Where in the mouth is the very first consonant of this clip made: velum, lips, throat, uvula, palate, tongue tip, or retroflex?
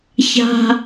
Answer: palate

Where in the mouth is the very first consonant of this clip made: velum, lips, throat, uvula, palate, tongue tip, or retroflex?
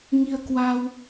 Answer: velum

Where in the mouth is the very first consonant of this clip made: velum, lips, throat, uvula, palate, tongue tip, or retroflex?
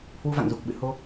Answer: throat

